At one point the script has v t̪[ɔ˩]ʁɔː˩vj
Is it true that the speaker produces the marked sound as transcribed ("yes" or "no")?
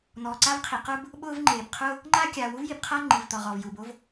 yes